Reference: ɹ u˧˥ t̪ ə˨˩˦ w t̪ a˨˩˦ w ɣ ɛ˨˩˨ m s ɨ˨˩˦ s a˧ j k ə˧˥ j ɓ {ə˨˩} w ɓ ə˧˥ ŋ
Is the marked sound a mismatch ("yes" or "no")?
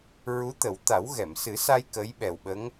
yes